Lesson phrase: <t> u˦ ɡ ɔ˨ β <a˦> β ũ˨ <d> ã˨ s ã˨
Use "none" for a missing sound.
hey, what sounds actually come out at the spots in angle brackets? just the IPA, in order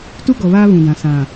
t, aː˦, d

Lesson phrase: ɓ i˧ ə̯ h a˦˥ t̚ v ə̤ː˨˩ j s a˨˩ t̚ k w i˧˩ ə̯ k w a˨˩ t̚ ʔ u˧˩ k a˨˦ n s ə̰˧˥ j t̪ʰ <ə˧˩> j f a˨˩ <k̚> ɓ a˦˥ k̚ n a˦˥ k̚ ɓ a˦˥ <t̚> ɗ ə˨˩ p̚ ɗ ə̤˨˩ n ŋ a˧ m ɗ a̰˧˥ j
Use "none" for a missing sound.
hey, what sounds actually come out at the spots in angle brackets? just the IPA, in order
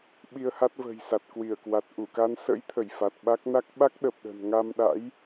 ə˧˩, t̚, k̚

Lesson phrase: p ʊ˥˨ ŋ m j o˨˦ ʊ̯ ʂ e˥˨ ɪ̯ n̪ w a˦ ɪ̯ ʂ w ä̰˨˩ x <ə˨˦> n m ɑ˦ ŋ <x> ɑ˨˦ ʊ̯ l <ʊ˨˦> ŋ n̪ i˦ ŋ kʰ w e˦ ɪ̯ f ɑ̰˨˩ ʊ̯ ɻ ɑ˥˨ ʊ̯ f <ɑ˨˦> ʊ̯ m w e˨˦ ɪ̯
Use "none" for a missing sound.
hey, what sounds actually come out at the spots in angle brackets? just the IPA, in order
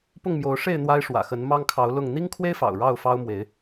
ə˨˦, kʰ, ʊ˥˨, ɑ˦

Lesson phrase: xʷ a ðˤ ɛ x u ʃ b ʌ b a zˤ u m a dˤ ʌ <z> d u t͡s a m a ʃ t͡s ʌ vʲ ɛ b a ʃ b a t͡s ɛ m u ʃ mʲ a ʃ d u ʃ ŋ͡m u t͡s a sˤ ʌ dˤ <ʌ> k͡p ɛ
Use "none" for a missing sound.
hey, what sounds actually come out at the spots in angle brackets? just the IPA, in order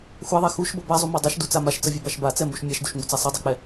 ʃ, ʌ

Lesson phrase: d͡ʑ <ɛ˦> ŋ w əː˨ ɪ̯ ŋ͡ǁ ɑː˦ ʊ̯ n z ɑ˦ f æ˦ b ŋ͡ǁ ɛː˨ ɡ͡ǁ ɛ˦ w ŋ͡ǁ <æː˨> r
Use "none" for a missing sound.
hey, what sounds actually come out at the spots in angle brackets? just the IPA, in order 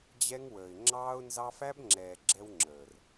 ɛ˦, əː˨

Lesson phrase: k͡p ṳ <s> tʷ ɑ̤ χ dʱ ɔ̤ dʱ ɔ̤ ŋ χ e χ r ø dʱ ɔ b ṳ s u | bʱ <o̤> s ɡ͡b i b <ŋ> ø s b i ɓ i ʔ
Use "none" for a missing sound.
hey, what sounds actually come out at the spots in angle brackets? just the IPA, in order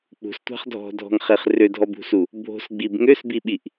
s, o̤, ŋ

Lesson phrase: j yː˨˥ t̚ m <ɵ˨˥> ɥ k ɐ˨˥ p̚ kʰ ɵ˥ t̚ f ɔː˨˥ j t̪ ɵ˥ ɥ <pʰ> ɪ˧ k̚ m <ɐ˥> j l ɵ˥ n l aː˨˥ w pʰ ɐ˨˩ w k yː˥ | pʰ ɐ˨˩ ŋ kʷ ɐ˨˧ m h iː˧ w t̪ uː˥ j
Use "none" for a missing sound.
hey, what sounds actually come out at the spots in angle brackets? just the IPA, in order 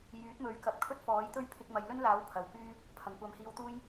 ɵ˨˥, pʰ, ɐ˨˧

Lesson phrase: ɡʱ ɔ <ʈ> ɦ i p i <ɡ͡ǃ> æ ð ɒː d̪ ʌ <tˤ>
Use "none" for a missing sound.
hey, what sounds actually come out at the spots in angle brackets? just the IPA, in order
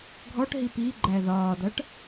ʈ, ɡ͡ǃ, ʈ

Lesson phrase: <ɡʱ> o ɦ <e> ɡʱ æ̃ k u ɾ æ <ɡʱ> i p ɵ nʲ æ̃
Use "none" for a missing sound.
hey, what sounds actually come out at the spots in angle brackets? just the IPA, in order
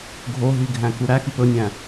ɡʱ, i, x

